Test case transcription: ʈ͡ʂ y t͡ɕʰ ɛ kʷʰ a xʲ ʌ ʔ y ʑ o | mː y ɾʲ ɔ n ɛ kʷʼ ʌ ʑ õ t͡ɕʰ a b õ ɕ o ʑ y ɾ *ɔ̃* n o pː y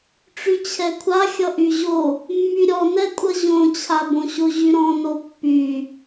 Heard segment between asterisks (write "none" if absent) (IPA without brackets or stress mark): ɔ̃